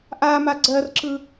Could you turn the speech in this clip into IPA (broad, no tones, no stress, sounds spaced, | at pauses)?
ʔ a m a ɡ͡ǀ ɜ r ǁ ɯ